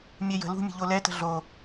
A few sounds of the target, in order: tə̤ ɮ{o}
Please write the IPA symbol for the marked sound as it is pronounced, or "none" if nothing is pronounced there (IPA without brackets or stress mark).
o